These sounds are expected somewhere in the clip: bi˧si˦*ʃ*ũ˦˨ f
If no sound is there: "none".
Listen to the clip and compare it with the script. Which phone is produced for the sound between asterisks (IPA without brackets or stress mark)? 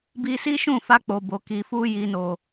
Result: ʃ